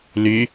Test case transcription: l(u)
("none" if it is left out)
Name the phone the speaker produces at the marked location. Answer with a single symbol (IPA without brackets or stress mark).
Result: y